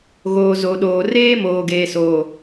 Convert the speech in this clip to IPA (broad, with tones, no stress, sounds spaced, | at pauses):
ɣ oː˨ z o˨ ɗ oː˨ r eː˦ m oː˨ ɡ eː˨ s oː˨